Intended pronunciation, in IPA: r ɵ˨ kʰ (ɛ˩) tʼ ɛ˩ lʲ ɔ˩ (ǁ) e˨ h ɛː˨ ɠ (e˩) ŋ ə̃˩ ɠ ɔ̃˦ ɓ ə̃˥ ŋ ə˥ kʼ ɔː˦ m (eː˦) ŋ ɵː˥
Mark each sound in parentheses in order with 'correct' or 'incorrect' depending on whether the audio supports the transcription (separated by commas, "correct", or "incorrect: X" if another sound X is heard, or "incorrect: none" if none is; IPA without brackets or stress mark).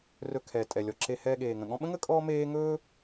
incorrect: ɛː˩, correct, incorrect: eː˩, correct